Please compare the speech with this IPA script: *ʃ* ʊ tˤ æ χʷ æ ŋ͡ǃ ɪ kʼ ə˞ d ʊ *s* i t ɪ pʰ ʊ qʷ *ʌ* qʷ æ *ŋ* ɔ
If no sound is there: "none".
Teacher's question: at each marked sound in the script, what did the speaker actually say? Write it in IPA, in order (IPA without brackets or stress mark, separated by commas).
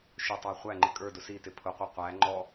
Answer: ʃ, s, ʌ, ŋ͡ǃ